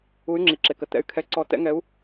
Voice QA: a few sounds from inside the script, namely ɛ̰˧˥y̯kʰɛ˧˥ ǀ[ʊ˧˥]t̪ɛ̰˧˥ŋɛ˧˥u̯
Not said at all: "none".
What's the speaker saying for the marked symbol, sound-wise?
ɔ˧˥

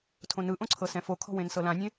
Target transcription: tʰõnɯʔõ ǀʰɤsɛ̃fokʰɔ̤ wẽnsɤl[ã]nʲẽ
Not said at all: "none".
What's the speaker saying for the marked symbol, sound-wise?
ã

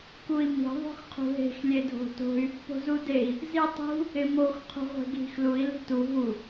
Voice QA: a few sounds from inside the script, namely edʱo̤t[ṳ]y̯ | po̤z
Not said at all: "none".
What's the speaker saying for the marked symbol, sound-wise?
o̤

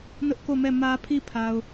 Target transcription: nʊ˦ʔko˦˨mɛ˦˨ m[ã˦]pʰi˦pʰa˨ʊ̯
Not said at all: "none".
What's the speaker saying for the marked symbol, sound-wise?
ä˦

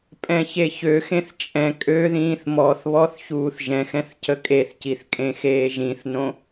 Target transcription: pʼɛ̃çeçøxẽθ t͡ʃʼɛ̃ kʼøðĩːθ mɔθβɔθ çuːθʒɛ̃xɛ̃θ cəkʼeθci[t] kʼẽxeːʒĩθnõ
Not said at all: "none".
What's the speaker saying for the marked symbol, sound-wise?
θ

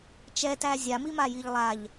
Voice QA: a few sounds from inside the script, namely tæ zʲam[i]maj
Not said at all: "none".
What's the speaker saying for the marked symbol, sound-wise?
i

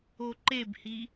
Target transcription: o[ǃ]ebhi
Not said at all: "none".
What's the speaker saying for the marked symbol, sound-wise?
ǃ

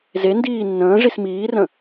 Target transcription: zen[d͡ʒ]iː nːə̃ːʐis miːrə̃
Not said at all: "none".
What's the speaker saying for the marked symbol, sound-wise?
d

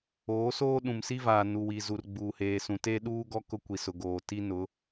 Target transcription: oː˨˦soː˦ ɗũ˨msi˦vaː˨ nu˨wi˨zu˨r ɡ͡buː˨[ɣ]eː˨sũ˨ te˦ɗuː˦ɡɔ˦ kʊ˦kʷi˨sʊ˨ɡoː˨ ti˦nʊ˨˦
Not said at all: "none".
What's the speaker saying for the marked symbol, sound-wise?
h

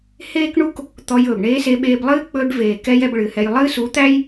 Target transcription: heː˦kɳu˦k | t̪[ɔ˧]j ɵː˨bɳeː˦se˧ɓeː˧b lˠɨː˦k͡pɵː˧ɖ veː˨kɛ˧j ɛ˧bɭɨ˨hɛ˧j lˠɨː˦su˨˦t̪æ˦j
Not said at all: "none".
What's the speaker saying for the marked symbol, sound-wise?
ɔ˧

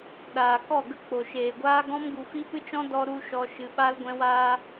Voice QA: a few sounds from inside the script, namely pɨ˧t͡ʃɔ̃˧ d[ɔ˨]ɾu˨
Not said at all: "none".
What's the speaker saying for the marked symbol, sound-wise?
ɔ˨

